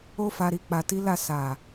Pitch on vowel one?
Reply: high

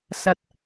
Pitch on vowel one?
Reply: low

